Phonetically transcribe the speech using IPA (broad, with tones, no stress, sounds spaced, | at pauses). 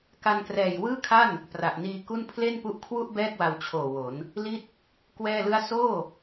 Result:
k a˧ n k r ɛː˨˩ j w ɯː˥˩ kʰ a˥˩ n | p r a˨˩ ʔ n iː˧ k u˥˩ n pʰ l e˥˩ n p u˦˥ ʔ kʰ w u˥˩ ʔ b ɛː˥˩ k̚ w a˧ w t͡ɕʰ oː˨˩ w o˩˦ n | l i˥˩ t̚ | k w ɛː˥˩ l ɯ˥˩ a̯ s oː˥˩